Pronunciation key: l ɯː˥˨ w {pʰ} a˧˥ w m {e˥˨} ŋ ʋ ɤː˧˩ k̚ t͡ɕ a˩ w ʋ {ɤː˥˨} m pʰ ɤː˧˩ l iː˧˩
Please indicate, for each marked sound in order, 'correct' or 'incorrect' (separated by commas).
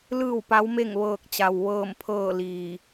incorrect, correct, incorrect